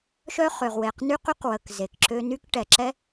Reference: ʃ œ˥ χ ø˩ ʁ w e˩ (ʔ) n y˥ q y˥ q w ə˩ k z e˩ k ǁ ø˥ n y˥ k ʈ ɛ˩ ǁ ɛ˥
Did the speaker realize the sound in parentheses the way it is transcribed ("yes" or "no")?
no